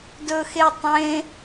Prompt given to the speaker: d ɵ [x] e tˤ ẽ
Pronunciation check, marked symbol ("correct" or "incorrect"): correct